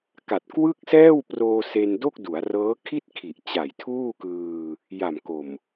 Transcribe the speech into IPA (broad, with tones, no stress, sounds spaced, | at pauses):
k a˨˩ t̚ k w ɯ˥˩ k̚ s ɛː˥˩ w p r oː˧ s e˧ n d o˥˩ k̚ d u˩˦ a̯ r ɤː˦˥ kʰ i˥˩ t̚ kʰ i˨˩ ʔ t͡ɕ a˨˩ j tʰ uː˥˩ k ɯː˧ | j a˨˩ m k o˨˩ m